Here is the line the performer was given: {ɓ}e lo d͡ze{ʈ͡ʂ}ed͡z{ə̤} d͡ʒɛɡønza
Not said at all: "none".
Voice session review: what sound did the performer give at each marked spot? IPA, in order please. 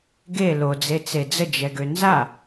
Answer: ɡ, t͡s, ə

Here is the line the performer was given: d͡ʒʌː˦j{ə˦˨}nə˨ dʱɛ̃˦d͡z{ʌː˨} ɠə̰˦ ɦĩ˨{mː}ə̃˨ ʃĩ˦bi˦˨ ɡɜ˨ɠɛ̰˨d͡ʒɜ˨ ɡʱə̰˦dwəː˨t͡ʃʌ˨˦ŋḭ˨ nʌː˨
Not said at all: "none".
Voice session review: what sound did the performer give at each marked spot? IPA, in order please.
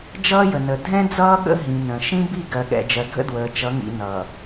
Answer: ə˨, ʌː˦, n

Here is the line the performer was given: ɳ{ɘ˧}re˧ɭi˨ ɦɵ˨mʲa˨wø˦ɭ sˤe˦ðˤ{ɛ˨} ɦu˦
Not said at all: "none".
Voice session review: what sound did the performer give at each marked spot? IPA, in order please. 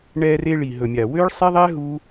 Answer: ɛ˧, ɛ˦

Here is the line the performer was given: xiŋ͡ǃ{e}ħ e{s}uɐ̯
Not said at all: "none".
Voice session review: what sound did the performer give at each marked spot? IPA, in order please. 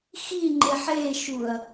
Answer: e, ʃ

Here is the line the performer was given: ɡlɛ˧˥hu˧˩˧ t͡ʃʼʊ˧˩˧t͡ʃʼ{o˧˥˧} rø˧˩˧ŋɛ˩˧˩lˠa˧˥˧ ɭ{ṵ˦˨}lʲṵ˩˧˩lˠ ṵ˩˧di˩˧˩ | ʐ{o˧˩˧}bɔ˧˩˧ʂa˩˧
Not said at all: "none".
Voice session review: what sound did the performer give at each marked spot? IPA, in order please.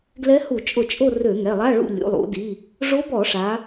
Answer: o˦˨, ṵ˦˨, o˧˥

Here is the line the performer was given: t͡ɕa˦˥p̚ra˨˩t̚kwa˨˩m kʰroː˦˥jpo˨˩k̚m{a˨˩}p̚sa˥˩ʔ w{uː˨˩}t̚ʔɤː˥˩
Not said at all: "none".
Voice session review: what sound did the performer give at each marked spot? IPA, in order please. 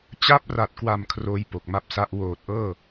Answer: a˦˥, oː˨˩

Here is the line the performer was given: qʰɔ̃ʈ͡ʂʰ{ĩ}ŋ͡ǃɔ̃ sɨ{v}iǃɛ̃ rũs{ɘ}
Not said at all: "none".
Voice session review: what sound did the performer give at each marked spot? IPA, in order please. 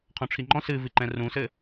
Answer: i, v, ɘ

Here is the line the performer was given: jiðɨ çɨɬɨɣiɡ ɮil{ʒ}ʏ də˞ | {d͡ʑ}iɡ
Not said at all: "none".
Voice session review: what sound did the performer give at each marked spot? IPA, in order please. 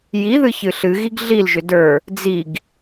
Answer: ʒ, d͡z

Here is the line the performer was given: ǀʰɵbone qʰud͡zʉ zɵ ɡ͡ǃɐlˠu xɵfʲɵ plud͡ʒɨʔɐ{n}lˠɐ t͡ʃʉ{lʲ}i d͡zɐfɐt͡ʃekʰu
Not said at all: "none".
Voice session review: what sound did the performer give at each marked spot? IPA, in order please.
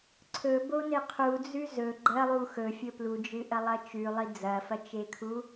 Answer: none, lˠ

